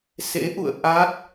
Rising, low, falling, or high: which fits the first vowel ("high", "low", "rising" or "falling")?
rising